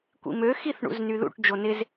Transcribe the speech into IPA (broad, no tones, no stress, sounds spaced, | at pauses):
kʷ ḭ m ø x i θ ɳ ṵ z n y ð ṵ ʈ d͡ʒ o n ɪ z